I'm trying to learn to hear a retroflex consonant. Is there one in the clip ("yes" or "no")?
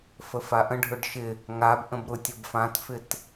yes